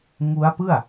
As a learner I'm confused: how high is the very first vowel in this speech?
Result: high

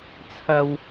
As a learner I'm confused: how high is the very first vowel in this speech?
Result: low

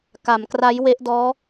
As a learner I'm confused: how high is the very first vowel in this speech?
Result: low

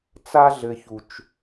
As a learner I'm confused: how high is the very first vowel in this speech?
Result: low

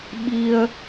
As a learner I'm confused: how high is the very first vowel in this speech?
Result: high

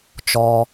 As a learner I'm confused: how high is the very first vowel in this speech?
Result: mid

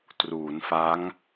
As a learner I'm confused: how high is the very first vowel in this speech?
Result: high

